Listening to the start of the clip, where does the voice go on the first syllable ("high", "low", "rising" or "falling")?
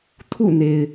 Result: falling